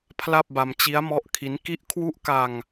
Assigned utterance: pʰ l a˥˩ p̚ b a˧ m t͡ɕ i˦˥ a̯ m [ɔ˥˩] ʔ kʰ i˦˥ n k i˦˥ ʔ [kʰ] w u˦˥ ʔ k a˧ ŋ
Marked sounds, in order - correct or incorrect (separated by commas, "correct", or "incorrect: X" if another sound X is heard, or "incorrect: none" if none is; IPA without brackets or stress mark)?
incorrect: ɔ˦˥, correct